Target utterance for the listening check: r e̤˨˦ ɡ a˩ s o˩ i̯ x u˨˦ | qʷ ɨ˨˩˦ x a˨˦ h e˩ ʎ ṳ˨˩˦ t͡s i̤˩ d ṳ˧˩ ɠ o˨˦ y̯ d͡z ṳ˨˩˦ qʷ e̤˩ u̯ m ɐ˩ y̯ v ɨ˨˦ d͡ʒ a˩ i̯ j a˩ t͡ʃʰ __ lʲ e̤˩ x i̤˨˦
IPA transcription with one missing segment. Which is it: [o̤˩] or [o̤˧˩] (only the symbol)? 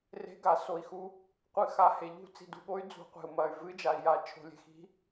o̤˩